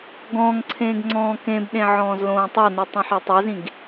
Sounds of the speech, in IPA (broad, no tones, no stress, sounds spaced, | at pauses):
ɡ ɔ̃ː ŋ ǀʰ ẽː ɡ ŋ͡ǀ ɔ̃ː k ẽ b ɗ ẽ ʕ ɔ̃ː z l õː tˤ a n ɯ tˤ õ ħ e tˤ ɛ z ĩ ɡ